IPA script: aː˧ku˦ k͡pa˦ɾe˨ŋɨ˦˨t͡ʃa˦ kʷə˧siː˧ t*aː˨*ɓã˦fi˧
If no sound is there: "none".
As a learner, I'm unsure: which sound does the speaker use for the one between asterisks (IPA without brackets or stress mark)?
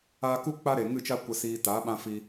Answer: aː˨˦